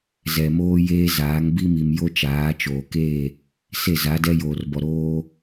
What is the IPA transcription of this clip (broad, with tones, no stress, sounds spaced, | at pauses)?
z ɛ˨ m oː˦ j eː˦ z aː˨˦ ŋ b i˦ m i˨ m j o˦ t͡ʃ aː˨˦ t͡ʃ oː˨ k e˦˨ | s e˦˨ z a˨˦ d ɛ˦ j oː˨ r b ɔ˨ ɾ oː˦